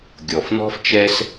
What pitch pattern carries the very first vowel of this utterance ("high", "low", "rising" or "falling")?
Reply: low